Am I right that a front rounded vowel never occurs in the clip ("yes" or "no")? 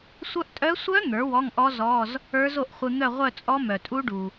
no